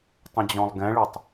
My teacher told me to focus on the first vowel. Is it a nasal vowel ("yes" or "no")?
yes